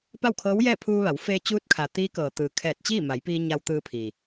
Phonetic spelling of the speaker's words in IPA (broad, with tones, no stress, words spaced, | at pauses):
pa˥˨wkʰɤː˧˥wjɛː˥˨ pʰuː˧ʋa˩˧w feː˧t͡ɕuː˧˥t̚kʰa˩ t̪iː˧˥kɤː˩t̪ɯː˩ kʰɛː˧˩t̚t͡ɕiː˥˨ma˩˧jpiː˧ ɲa˧wt̪ɯː˧pʰiː˩